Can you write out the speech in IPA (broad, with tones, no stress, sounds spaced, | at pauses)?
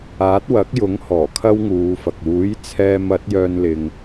aː˨˥ t̚ w ɐ˨˥ k̚ j ʊ˨˥ ŋ h ɔː˨˩ kʰ ɐ˥ w ŋ uː˨˧ f ɐ˨ k̚ uː˨˥ j t͡sʰ ɛː˧ m ɐ˨˥ t̚ j œː˧ n l ɪ˨ ŋ